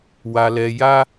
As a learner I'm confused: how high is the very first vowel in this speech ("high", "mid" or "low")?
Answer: low